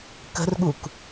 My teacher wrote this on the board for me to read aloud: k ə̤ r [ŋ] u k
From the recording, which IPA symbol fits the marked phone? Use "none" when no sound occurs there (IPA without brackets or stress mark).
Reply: ɠ